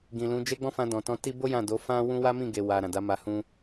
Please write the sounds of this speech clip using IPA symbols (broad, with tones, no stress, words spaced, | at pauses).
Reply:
ɡĩ˨lũ˨˦ d͡ʒe˦ɡ͡bɔ̃˦ fã˧dɔ̃˨tɔ̃˧ ti˧bo˦ jã˦˨do˨˦ fã˦wũ˦ wa˦mĩ˦˨ɡe˨wa˨ ɾã˨da˨˦ma˧ hũ˧